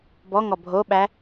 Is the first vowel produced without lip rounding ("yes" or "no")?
no